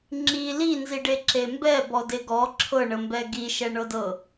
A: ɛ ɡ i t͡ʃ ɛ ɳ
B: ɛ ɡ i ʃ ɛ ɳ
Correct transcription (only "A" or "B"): B